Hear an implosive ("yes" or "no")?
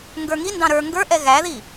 no